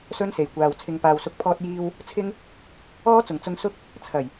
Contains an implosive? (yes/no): no